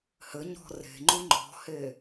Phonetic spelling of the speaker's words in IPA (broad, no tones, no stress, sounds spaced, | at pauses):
h ɘ ɲ ɔ̤ r e̤ ŋ͡ǃ ũ ŋ͡ǃ ɔ̤ h e